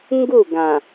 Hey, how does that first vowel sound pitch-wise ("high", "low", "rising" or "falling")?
falling